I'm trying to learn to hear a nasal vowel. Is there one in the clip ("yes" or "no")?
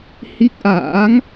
no